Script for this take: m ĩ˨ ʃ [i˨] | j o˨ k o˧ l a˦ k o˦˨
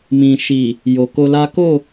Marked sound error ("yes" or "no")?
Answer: no